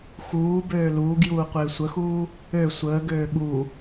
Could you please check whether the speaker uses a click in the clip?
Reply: no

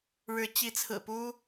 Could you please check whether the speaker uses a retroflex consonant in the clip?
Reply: yes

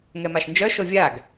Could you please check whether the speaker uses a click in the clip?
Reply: no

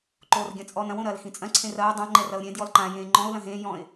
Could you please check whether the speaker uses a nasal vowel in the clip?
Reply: yes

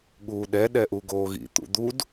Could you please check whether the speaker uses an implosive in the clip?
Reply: yes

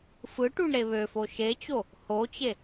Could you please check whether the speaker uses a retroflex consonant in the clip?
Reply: yes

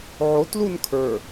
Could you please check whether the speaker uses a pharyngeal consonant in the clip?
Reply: yes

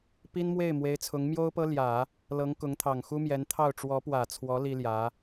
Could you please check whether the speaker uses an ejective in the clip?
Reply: no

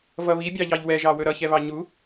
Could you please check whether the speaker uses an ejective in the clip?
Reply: no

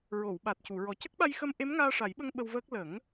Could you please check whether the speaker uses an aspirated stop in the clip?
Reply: no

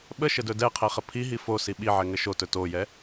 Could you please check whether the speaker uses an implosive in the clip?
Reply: yes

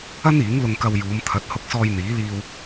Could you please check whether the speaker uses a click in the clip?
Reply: no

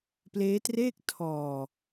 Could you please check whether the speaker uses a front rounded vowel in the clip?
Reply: no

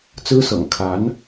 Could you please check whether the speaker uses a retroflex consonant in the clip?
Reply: no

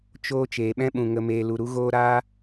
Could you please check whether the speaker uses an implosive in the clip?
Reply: yes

